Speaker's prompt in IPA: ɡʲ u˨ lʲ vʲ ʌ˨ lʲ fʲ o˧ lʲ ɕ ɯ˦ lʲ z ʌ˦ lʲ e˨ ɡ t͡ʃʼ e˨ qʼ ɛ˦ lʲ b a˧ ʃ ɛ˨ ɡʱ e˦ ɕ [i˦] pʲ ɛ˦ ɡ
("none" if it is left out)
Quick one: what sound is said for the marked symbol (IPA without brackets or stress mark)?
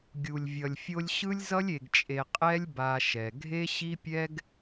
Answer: i˦